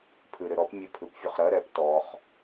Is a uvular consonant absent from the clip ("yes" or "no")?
no